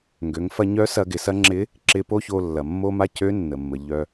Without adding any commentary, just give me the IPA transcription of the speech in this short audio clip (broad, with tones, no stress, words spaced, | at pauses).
ŋɡø˩˧ŋfɐ˧ɲœ˧˥ sɐ˧ɡɪ˩˧sɐ˧˥ ŋ͡ǁɪ˧˥ | ǁɪ˧po˥ço˧ lːɐ˩mːo˥ma˥ cø˧˥nːə˩mːə˩ ʎœ˧